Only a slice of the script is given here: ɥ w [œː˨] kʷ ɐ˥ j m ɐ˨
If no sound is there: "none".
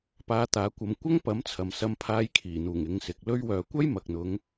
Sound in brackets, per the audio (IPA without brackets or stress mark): œː˨